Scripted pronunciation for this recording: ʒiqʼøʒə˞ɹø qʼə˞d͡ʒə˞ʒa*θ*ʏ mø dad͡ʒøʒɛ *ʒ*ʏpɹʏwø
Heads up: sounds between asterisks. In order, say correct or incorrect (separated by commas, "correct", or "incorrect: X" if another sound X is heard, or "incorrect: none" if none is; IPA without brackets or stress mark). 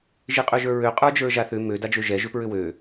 correct, correct